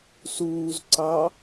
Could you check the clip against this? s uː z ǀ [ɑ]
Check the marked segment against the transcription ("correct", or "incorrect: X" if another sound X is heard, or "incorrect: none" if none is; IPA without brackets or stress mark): correct